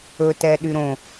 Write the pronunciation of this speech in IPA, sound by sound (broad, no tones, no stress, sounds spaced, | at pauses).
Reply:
ɵ t ɛ ɗ y ɾ õ